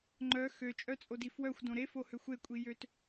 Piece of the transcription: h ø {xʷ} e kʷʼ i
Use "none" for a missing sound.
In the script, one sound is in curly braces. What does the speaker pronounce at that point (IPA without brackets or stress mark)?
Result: xʷ